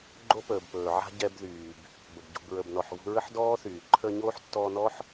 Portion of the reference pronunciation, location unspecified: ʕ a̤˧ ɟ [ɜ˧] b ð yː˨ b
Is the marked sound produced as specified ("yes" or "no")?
no